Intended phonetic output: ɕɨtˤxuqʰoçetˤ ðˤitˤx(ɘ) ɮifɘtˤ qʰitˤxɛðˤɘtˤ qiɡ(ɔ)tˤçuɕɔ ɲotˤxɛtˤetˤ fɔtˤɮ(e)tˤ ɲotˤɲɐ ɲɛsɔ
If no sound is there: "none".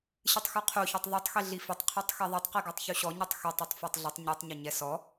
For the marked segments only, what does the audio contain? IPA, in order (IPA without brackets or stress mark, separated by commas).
e, ɔ, ɘ